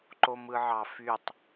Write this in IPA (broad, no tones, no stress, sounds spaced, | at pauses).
ǃ o m ɯ ʕ ɑ f y tˤ